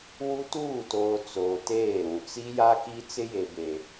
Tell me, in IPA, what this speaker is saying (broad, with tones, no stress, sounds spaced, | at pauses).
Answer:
w u˦ t uː˦˨ t oː˨ t͡s oː˨ t eː˦˨ ɾ ũ˨ t͡s i˦ j a˦ k i˦ t͡s ɪ˦ j e˨ b e˨